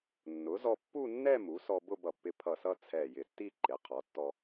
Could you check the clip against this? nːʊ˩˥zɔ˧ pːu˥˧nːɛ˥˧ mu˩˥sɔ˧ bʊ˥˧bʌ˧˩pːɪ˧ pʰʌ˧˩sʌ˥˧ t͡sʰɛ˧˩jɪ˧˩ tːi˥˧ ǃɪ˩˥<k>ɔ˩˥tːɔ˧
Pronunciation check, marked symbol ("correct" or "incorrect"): incorrect